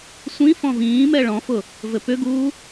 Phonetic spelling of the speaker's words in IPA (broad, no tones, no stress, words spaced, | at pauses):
sʷĩ fɔ̃vĩːmɛ ɭɔ̃fʊ | vɘpʏɡuː